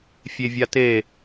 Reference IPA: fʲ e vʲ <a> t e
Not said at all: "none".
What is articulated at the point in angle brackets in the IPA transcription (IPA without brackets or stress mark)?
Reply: a